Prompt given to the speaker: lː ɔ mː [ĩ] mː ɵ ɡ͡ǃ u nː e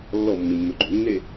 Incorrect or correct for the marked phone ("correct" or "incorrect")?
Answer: correct